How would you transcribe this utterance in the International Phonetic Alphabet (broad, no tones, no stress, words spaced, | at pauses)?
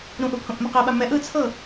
ɾũʔu pʰõʔmɛqeɓa mɛʔ ɯt͡sʰɤ